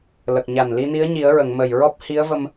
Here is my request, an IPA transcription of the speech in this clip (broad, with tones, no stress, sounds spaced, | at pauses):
l ə˨˩ k̚ ɲ a˨˩ n l i˧ n i˧˥ ə̯ ɲ i˨˩˦ ə̯ ɹ ə˨˩˨ ŋ m ə˨˩ j ɹ ɔ˦˥ p̚ h i˧˥ ə̯ v ə˧ m